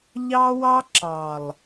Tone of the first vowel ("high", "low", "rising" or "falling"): high